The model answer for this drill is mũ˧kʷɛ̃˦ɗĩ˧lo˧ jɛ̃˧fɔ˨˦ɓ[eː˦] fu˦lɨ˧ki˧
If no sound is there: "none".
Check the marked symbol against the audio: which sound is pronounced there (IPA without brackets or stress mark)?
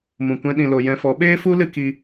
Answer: eː˦